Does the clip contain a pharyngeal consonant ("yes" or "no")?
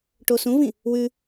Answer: no